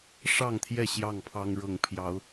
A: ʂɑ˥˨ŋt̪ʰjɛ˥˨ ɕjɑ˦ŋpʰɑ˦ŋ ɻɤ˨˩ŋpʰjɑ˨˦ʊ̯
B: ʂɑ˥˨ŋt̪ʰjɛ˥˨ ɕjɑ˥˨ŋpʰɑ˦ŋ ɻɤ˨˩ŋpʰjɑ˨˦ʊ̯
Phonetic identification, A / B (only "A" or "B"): B